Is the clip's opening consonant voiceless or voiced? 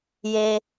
voiced